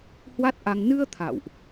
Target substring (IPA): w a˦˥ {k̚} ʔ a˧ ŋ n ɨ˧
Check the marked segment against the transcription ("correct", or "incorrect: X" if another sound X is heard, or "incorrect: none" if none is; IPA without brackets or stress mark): incorrect: t̚